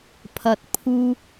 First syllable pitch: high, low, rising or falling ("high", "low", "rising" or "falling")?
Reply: low